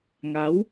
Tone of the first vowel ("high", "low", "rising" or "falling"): rising